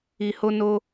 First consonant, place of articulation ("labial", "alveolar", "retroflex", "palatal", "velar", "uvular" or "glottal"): glottal